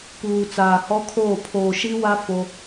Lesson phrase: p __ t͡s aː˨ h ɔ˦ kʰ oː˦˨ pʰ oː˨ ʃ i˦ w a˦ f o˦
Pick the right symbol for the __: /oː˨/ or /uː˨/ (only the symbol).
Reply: uː˨